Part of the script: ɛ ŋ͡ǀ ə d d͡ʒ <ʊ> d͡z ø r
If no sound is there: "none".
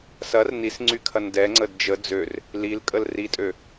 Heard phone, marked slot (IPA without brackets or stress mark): ə